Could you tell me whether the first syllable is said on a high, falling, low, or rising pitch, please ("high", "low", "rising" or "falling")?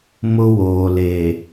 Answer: high